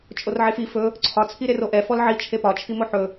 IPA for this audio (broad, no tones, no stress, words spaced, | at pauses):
t͡ʃʼorʕefi fɵ | ǀʰɒ t͡sʰiɾeroʔɛ fɔlʕi t͡ʃʰepɒ t͡ʃʰimoħɵ